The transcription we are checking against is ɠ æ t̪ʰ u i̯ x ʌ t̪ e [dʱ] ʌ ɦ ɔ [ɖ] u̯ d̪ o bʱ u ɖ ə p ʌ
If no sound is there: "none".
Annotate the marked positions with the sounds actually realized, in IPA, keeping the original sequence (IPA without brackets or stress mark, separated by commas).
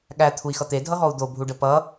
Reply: dʱ, none